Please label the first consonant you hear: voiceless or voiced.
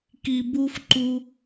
voiceless